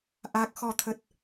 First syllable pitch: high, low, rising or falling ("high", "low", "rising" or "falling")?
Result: low